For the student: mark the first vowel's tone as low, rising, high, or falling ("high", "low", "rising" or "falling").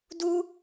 high